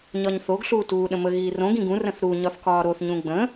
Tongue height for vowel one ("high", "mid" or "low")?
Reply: low